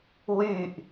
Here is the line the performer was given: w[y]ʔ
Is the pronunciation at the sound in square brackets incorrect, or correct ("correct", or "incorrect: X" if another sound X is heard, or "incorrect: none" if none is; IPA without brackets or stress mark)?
correct